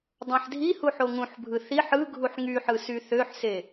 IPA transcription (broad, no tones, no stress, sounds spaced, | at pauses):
dˤ ɑ̃ ħ dʱ i h u ħ o ŋ ũ ħ bʱ ɯ θ i ħ ɯ ɡʱ u ħ ŋ y ħ ɯ s y θ ø ħ s e